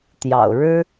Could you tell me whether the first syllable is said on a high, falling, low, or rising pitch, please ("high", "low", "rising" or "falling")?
low